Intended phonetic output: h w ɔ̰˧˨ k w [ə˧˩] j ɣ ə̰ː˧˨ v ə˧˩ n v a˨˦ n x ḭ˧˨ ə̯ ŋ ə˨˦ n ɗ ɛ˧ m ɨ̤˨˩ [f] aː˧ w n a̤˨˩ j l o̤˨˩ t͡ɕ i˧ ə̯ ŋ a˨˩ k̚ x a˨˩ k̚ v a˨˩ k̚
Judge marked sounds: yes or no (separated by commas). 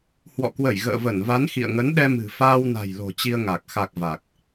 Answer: yes, yes